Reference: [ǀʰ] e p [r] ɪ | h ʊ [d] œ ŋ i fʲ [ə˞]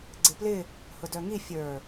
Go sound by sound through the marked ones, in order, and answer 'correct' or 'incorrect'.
incorrect: ɡ͡ǀ, incorrect: l, correct, correct

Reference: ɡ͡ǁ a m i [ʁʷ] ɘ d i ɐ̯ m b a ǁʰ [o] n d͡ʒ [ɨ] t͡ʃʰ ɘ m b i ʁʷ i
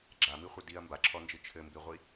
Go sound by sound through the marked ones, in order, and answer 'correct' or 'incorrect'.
incorrect: χʷ, incorrect: ɔ, correct

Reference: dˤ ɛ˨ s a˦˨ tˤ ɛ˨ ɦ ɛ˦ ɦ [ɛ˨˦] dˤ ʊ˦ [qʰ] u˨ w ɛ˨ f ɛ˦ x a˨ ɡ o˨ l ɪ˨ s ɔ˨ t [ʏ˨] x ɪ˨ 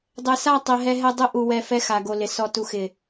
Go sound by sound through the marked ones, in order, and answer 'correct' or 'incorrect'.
incorrect: ɛ˦, incorrect: ʔ, incorrect: u˨

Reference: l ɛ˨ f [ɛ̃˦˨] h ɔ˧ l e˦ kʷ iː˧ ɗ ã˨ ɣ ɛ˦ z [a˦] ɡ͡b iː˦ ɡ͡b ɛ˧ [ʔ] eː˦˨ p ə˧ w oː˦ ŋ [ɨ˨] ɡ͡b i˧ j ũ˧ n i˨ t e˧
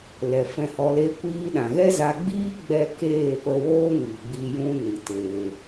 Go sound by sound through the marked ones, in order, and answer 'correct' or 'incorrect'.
incorrect: ɛ̃˧, incorrect: a˧, incorrect: k, incorrect: i˨

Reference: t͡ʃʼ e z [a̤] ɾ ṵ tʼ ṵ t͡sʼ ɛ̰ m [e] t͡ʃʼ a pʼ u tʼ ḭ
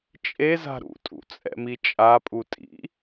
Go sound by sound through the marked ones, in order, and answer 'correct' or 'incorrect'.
correct, incorrect: i

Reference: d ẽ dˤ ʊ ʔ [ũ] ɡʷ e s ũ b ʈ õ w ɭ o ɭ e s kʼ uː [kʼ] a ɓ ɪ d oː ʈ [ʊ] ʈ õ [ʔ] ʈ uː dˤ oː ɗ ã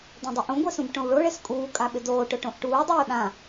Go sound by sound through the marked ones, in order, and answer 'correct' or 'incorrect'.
correct, correct, correct, correct

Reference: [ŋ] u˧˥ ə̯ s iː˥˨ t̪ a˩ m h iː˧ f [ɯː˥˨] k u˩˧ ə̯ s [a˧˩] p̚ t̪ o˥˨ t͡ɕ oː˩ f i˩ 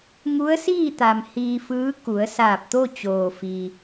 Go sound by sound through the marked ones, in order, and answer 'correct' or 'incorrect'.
correct, incorrect: ɯː˧˥, incorrect: aː˧˩

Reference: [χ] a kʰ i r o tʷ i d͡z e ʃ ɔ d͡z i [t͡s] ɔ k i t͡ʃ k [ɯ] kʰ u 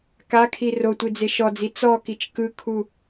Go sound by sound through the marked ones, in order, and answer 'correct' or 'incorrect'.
incorrect: k, correct, correct

